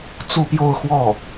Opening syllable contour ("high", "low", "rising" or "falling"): falling